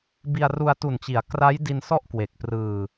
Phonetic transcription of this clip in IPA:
bi˧a̯ru˧a̯tu˨˩nt͡ɕi˩˦a̯ kra˦˥j di˧nsɔ˥˩ʔ kwe˨˩k̚prɯː˧

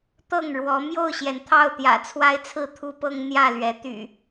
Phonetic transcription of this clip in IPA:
t̪ɤ˥˨ŋɻwɔ˨˦ mjo˥˨ʊ̯ɕjɛ˩nt̪ʰɑ˥˨ʊ̯t̪jä̰˨˩ t͡sʰwa˦ɪ̯t͡sʰɹ̩˥˨t̪ʰu˦pɤ˦ŋ n̪jä˥˨lɥɛ˨˦t̪y̰˨˩

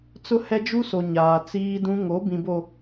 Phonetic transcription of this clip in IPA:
t͡sʊ˦hɛ˦d͡ʒu˦so˨ ɲaː˨t͡siː˦dũ˦ ŋo˨˦bĩ˨bo˨

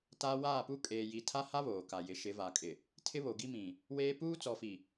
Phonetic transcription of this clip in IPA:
ta˦ waː˦˨pu˦ kʼeː˨ji˨tʰa˦ha˦ βoː˨ka˨jɪ˨˦ ʃɪ˨˦va˨kʼɪ˨ | tʰɪ˦βo˨ɡi˦ mĩ˨ | weː˦ puː˦t͡sɔ˨fi˨

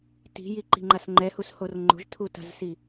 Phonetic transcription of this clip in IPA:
ti̤jiǃi̤ŋ͡ǃas ŋ͡ǃɛhushor ŋ͡ǃo̤ʒtʰuta̤zsi

